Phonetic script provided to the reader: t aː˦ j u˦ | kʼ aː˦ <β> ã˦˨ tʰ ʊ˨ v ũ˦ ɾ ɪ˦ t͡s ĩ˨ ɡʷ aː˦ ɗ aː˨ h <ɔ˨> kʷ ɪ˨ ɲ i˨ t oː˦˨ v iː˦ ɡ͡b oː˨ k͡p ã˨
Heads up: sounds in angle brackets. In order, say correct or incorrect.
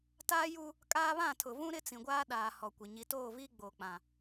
correct, correct

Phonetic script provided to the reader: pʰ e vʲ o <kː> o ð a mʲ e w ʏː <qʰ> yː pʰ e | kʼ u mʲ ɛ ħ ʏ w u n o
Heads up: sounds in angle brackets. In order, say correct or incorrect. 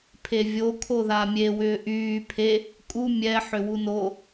incorrect, incorrect

